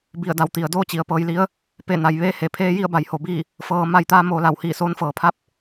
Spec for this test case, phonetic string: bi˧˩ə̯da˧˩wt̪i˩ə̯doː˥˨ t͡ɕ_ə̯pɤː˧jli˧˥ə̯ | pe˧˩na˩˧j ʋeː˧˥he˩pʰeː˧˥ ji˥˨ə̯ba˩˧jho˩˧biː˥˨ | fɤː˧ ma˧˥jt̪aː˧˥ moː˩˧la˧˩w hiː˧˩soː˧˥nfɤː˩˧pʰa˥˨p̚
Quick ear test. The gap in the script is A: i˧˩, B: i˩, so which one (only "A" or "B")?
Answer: B